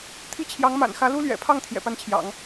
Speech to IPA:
t̪ʰ i˥˩ t͡ɕʰ j ɑ˧˥ ŋ m a̰˨˩ n x ä˧˥ l u˥ l ɥ ɛ̰˨˩ pʰ ɑ˥˩ ŋ t̪ʰ j ɛ̰˨˩ p a˥˩ n t͡ɕʰ j ɑ̰˨˩˦ ŋ

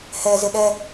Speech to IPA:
h ɛ z ɪ ɗ ɛ

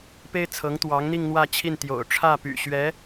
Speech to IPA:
p e˥ ɪ̯ t͡sʰ ɤ˧˥ ŋ t̪ w ɑ˧˥ ŋ n̪ i˥˧ ŋ n̪ w ä˥˧ t͡ɕʰ i˥˩ n t̪ j o̰˨˩ ʊ̯ ʈ͡ʂʰ ä˥˩ p y̰˨˩ ɕ ɥ ɛ˧˥

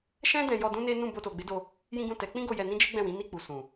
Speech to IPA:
ʃ ɛ̃˦ d ɛ̃˧ j ɔ˧ d ũ˦ n e˦ n ũ˦˨ b o˧ t o˨ ɡ͡b e˨˦ d o˧ | j ĩ˦ ɡ ũ˦˨ t ɛ˨˦ k͡p ĩ˦ ɡ o˧ j ɛ˧ n ĩ˦ d͡ʒ e˦ ɡ͡b ɛ̃˦˨ w ĩ˨˦ n i˦˨ k͡p u˨ s ũ˨

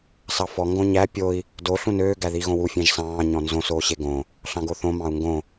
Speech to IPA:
s ɑ f ɔ ŋ ɡ õ ɲ æ pʲ o i̯ | d o ɬ ũ n øː ɡ æ ð i ɣ õ w u fʲ æ̃ ʒ s ɑ̃ː ɲ ɔ̃ n z õ s oː ɕ e ɡ õ | ɬ ɑ̃ ɡ o θ õ m ɑ̃ u̯ ŋ ɡ õ

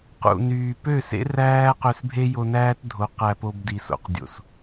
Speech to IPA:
q ṵ˨ n yː˨ p ø˦˨ s ḛ˦ r æː˦ q ø˧ s bʱ e˦ j o˧ n æː˦ t dʱ o˨˦ q æ˧ p o˧ b d i˨ s o̰˨ q dʲ o̰˨ s

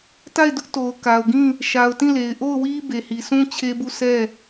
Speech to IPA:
t a˦˨ ɪ̯ d ʊ˦ ʔ t o˨ ʊ̯ k a˨ ʊ̯ ɡ ĩ˦˨ | ʃ a˨ ʊ̯ t ĩ˦˨ l e˨ ɪ̯ ʔ o˦˨ ʊ̯ w i˦ b e˨ h i˨ s ũ˦ t͡ɕʰ e˦ b u˦˨ s ɛ˦˨

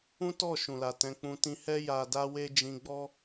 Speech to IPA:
ũ˦ t ɔ˦˨ ʃ ũ˨ l a˨ t ɛ̃˧ k͡p ũ˧ t ĩ˧ h ɛ˦ j a˧ d a˦ w e˦ d͡ʒ ĩ˧ ɡ͡b ɔ˦

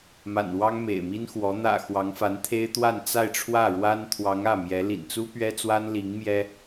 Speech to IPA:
m a̰˨˩ n w ɑ˥ ŋ m ḛ˨˩ ɪ̯ m i˥ n x w ɔ˧˥ n̪ ä̰˨˩ x w ɑ˧˥ ŋ f a˧˥ n t̪ʰ e˥ ɪ̯ t̪ w a˥˧ n t͡s a˥˧ ɪ̯ ʈ͡ʂʰ w ä˥˩ ɻ w a˥ n t̪ʰ w ɑ˧˥ ŋ ä˥˩ m j ɛ˧˥ l ḭ˨˩ n t͡s u˥ p ɥ ɛ˥ t͡s w a˥ n l i˧˥ ŋ m j ɛ˥

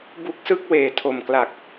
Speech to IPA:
b u˦˥ k̚ s ɯ˥˩ k̚ w eː˨˩ tʰ o˨˩ m k l a˨˩ k̚

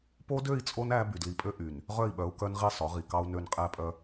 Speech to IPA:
p o˦ d ø˦˨ i̯ t͡sʼ o˦ n æ˦ b y˨ d l i˨ pʼ ø˦ ʔ y˨ n | ʁ œ˦˨ i̯ ɓ œ˨˦ u̯ k œ˦ n ʁ i˦˨ sˤ œ˨˦ ʁ i˨ k ɑ˦ u̯ n ø˦ n qʼ æ˦ pʼ œ˦

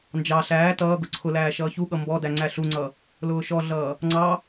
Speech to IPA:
n d͡ʒ ɑ ɬ æː t ʌː ɡ ʊ ǀʰ ʊ l æː ʃ ʌː ç u ɠ ʌ m b ɔ d æ ŋ͡ǀ æ ɬ u ŋ͡ǀ ʌ | l ʊː ʃ ɔ ɮ ʌː | ŋ͡ǀ ɑ

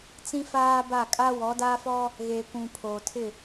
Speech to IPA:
t͡s ĩ˦ f aː˦ b a˦˨ kʼ a˦ w ɔ˨˦ d aː˦ f ɔ˦ | ɣ eː˨ kʷ ũ˨ pʰ oː˨ tʰ ɪ˦˨

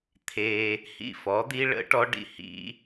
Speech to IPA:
t̪ʰ e˧ | h ḭ˦˨ f ɔ˨˦ d̪ i˦ ɭ ə̰˦ ʈ ɔ˦ ɖ ḭ˧ h ḭ˦

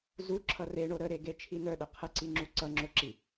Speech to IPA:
z u ǁʰ ʌ r e ɳ o ɾ ə ɾ e ɡ e t͡ʃʰ i n œ ɗ ə qʰ ə ǀ i ŋ͡ǁ u ǀ ʌ ŋ͡ǁ o ǁ i

